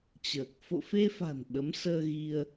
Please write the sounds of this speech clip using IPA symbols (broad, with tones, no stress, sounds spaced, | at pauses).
t͡ɕ əː˨˩ k̚ f o̰˧˨ f e˧ f a̤˨˩ n ɓ ə˨˦ m s əː˧ ɣ i˧ ə̯